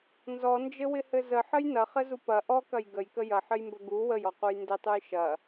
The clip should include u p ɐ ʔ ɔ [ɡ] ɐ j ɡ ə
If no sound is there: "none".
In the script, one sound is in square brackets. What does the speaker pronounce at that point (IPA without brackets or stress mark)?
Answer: k